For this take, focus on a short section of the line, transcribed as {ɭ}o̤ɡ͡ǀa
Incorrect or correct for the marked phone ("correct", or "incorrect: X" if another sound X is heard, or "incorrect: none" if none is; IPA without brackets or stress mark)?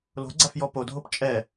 incorrect: l